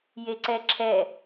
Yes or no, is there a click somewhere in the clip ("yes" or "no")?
yes